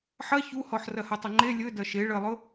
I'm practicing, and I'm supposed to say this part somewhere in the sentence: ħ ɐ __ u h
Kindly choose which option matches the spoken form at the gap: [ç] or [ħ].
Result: ç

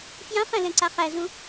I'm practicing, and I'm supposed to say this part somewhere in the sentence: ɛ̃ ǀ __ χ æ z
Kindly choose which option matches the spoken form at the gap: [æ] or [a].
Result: a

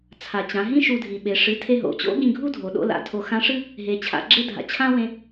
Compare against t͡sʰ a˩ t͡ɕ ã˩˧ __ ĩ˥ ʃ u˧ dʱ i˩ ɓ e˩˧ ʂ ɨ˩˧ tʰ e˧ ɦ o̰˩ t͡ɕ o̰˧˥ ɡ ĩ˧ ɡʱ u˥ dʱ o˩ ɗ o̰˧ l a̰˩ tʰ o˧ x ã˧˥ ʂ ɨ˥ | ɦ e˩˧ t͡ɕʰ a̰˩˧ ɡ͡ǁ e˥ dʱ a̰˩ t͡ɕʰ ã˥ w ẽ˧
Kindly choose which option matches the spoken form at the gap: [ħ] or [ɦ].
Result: ɦ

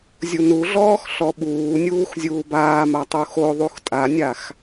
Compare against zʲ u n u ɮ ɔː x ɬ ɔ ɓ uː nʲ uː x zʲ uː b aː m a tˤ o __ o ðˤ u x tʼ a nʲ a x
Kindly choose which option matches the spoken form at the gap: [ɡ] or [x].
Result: x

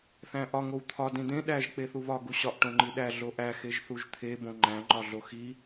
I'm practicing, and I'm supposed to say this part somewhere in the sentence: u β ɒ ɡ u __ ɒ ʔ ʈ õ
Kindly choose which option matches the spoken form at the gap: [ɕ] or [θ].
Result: ɕ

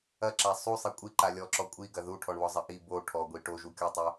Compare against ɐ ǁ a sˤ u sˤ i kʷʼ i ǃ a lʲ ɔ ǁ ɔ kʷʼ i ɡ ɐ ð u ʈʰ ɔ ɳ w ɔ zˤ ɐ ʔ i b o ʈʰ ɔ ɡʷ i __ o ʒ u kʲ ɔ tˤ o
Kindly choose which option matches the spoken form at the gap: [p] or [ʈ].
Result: ʈ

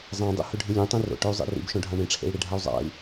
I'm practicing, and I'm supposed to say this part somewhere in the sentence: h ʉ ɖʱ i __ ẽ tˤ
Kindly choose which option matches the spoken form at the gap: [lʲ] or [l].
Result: lʲ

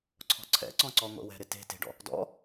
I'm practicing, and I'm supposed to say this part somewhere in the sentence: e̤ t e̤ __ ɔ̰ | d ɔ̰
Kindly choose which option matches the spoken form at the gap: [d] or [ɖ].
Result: ɖ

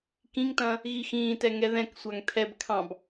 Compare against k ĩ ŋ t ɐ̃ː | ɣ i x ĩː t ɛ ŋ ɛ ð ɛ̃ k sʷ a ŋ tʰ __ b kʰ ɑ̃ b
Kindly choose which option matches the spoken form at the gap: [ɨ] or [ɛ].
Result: ɛ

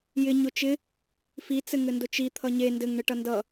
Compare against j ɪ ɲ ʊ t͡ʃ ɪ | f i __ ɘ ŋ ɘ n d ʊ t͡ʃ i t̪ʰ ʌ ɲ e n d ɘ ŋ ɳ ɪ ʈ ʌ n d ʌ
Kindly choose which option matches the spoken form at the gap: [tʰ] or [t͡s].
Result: t͡s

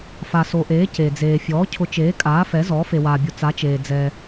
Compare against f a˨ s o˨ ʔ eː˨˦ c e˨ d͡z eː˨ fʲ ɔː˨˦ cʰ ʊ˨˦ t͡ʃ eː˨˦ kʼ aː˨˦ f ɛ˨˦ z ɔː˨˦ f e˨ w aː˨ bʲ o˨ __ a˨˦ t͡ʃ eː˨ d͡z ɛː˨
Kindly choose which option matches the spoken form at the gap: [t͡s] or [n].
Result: t͡s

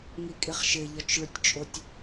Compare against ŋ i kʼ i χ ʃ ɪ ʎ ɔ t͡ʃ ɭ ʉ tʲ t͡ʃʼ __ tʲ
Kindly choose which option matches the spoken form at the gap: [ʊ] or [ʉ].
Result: ʊ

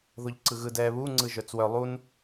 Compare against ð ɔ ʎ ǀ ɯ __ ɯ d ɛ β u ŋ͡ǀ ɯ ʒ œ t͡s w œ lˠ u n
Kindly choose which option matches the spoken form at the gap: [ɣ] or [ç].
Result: ɣ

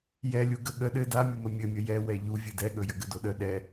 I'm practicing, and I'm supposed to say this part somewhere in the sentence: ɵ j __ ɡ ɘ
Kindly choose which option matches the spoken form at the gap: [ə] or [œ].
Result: ə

